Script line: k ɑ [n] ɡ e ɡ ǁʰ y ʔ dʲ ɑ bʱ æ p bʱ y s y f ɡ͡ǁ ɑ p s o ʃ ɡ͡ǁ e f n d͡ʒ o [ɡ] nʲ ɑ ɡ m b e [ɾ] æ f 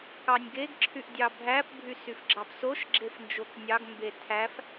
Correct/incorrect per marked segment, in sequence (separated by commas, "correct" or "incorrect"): incorrect, incorrect, incorrect